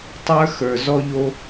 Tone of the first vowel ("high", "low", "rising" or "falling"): high